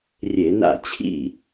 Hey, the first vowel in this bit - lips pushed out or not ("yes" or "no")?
no